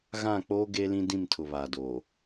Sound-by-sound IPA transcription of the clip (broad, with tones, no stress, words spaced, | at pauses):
ɣã˦˨k͡poː˦ ɡe˦lĩ˦ dĩ˦˨mtʰʊ˨βaː˨doː˨